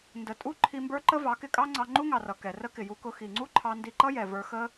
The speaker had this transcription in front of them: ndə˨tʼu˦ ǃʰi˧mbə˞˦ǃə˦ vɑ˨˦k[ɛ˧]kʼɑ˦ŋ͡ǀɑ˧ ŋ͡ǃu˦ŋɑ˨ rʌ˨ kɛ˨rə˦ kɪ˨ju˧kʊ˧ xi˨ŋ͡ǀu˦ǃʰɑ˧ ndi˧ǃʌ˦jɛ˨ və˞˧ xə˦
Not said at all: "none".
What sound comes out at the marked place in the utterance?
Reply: ɪ˧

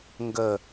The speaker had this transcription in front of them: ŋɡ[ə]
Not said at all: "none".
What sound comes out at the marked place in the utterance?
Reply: ə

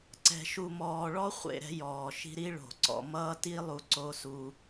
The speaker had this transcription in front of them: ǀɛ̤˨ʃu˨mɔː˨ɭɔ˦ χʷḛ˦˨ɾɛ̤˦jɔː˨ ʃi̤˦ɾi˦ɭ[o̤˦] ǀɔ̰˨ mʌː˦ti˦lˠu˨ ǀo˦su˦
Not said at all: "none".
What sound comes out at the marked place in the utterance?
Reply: o̤˨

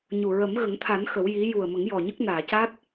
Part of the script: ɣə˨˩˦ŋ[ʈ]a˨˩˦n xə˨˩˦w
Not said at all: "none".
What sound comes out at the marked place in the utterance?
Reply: t̪ʰ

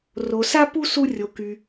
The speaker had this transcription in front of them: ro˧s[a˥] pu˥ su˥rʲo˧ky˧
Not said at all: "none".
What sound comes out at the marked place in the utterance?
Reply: a˥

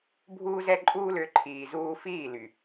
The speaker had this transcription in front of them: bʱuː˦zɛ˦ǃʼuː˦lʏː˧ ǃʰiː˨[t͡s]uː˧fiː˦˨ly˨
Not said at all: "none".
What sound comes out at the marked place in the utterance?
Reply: z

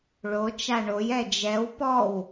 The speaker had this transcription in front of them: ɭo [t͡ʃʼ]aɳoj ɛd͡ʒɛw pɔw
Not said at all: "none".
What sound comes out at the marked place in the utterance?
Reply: t͡ʃ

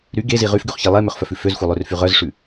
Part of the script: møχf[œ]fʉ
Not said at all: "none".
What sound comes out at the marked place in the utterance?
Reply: œ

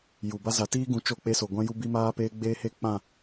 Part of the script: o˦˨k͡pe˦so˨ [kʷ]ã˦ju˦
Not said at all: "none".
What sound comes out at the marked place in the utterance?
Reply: ɡʷ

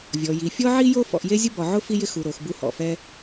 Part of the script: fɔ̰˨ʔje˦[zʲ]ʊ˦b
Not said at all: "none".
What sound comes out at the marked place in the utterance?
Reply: zʲ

